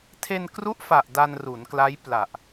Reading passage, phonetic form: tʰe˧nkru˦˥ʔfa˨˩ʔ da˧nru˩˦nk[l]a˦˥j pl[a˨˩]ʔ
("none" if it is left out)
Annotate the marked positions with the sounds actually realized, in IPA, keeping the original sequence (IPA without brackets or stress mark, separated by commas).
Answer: l, a˨˩